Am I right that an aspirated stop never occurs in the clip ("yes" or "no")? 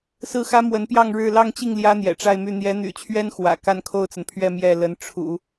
no